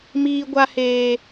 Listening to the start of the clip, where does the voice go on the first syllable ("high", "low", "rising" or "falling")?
high